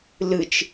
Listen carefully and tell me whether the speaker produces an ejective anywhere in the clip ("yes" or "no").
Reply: no